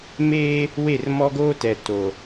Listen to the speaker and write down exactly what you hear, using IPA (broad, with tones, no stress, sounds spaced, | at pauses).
m eː˦ | w e˦˨ r m ɔ˦ ɡ oː˦ t ɛ˨ t o˨